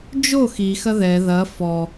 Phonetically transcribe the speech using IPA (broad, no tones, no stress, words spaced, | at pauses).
d͡ʒo xi xɐðɛ ðɐ fɔ